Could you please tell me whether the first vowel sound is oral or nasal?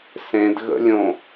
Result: nasal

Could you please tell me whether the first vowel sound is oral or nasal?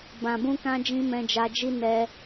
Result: nasal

